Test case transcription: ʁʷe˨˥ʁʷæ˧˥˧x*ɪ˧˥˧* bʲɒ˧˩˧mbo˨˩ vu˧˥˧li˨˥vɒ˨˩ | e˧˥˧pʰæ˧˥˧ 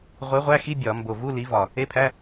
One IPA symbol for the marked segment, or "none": i˧˥˧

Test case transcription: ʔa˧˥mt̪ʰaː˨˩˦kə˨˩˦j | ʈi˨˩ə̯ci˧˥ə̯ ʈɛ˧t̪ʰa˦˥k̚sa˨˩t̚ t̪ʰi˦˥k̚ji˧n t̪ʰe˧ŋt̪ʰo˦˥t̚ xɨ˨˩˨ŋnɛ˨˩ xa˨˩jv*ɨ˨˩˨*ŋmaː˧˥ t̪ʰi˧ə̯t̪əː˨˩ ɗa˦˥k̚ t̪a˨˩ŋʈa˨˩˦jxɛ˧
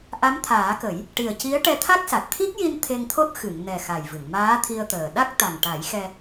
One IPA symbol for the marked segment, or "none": ɨ˨˩˨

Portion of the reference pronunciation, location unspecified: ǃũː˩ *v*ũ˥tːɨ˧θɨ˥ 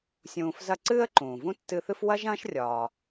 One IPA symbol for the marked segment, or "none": v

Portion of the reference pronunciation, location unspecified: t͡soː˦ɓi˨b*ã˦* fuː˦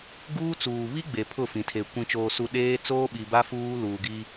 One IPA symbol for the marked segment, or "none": a˦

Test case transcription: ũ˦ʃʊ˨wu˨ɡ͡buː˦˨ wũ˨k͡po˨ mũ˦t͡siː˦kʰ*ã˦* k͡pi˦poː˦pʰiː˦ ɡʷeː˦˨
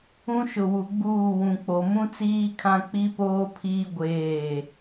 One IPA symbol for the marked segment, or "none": ã˦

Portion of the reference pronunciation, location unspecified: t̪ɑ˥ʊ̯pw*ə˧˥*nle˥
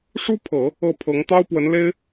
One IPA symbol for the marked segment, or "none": ə˧˥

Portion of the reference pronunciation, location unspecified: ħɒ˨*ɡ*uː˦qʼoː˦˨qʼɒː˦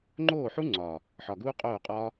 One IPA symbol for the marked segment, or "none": ɡ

